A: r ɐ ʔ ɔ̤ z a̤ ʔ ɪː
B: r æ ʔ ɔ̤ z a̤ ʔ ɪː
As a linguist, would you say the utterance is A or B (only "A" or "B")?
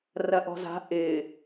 A